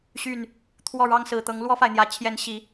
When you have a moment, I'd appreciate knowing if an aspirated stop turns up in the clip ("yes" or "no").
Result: yes